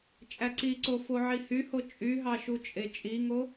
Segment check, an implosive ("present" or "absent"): absent